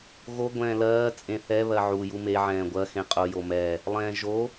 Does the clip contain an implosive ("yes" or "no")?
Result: no